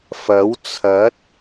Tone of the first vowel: rising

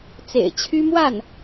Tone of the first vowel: low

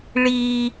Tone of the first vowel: low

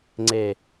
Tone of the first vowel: low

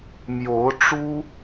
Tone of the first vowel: rising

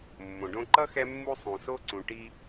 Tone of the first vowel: low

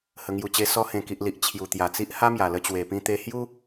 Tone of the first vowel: low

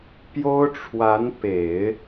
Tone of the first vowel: high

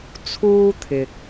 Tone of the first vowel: high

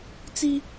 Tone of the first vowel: high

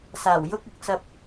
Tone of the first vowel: low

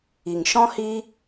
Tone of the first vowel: low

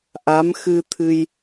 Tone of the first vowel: rising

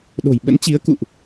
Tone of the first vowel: low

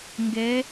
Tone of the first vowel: rising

